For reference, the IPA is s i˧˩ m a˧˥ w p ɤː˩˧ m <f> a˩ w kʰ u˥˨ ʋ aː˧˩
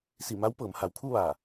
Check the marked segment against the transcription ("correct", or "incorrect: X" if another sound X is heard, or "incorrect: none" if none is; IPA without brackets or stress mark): incorrect: h